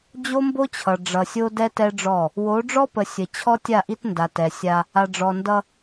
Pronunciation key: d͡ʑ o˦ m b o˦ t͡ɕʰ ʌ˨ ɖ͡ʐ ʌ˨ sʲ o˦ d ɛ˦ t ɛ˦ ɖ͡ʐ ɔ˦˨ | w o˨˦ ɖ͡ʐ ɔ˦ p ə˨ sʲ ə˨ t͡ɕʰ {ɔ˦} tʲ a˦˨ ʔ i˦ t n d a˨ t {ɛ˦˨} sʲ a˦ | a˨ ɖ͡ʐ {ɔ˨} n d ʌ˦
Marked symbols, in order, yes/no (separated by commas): yes, no, yes